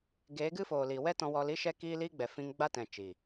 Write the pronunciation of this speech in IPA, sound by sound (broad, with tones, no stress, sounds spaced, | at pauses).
ɡ eː˨˦ ɡ ɨ˦ f oː˨ l iː˨ w ɛ˦ t ɔ̃˧ w ɔ˧ l i˦ ʃ ɛ˦ k iː˦ l iː˦ ɡ͡b ɛ˨ f ĩ˧ ŋ ɡ͡b a˦ t ɛ̃˨ t͡ʃ iː˨